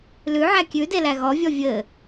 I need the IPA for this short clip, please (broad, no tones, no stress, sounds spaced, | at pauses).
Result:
l ʉ ʕ æ kʲ ʉ d e l æ ɣ ɔ vʲ ɔ vʲ ɘ